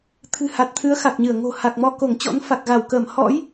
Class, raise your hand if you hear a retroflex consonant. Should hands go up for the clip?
no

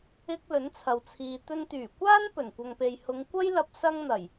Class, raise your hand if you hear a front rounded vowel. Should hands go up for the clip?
yes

